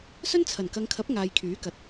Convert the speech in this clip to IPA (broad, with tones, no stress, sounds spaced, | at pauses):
s ɵ˥ n t͡sʰ ɐ˨˩ n k ɐ˨˧ ŋ kʰ ɐ˨˥ p̚ ŋ aː˨ j kʰ yː˨˥ k ɐ˨˥ t̚